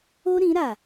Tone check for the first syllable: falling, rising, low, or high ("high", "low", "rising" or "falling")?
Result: high